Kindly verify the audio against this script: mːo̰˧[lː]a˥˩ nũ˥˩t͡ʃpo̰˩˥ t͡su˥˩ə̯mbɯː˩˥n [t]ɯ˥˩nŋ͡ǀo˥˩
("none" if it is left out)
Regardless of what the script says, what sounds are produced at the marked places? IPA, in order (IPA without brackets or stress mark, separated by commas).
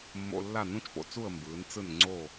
lː, t͡s